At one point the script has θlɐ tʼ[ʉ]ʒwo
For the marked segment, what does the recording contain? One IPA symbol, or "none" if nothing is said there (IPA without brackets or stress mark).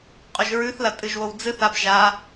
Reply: ɨ